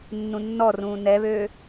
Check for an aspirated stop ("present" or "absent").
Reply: absent